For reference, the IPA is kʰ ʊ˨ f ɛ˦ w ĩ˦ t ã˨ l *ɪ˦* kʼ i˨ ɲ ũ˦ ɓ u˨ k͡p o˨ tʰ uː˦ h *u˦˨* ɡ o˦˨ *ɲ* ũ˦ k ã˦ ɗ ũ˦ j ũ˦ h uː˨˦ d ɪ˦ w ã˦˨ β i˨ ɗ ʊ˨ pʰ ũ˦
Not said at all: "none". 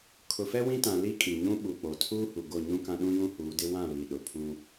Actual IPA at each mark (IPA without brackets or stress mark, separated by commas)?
i˦, u˨, ɲ